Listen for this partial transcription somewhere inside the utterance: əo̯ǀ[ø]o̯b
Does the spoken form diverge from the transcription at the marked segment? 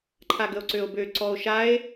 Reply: no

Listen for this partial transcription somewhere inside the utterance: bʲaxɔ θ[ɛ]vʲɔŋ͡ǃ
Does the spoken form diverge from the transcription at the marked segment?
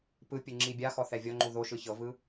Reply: no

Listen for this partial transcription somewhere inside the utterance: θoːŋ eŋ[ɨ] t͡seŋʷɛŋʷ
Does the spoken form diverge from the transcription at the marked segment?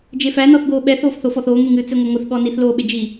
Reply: no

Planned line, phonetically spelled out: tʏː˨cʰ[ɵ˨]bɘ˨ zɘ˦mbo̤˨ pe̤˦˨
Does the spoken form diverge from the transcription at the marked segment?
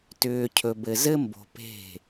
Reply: no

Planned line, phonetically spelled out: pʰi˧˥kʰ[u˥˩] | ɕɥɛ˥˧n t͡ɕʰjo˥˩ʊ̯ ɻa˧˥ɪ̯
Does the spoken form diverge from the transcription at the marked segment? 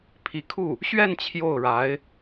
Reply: no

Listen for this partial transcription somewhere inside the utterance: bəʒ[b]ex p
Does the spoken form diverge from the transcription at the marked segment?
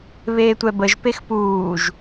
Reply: yes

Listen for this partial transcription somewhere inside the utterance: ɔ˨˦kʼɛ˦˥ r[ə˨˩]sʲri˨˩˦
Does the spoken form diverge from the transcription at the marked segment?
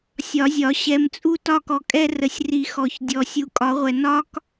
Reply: no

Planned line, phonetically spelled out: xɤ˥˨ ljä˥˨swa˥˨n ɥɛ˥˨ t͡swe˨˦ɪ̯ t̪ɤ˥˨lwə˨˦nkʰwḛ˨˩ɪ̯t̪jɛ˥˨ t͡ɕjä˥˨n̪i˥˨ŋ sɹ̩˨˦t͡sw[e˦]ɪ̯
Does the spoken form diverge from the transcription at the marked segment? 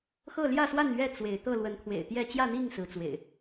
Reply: yes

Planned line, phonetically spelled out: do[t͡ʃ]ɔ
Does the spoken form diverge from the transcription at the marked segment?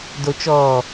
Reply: no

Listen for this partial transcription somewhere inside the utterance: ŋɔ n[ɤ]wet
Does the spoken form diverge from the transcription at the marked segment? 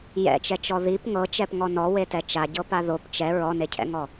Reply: yes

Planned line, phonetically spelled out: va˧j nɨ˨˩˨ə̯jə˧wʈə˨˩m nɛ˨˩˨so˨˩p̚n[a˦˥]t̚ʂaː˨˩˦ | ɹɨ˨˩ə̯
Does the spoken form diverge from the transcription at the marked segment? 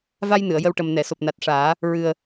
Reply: yes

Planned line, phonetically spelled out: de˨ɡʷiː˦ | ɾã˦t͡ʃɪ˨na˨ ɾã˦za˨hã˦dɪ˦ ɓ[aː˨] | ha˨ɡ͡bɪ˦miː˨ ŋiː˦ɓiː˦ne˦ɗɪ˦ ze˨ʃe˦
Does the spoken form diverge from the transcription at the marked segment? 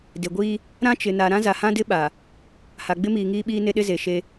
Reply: yes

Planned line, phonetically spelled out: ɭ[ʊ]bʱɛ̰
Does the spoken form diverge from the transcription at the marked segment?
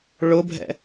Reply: no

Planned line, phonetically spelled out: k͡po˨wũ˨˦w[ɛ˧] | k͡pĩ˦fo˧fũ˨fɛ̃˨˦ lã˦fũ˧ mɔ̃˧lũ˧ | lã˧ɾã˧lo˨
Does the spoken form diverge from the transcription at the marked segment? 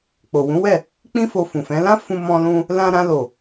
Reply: yes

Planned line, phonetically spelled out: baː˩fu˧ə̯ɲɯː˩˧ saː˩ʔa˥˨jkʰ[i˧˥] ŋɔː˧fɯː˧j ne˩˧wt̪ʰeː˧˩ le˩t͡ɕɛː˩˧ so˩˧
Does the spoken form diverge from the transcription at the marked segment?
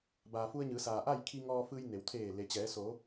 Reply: yes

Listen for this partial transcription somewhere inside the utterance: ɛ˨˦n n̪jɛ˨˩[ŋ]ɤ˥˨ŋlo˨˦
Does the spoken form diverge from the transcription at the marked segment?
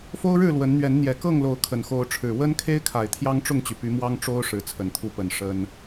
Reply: yes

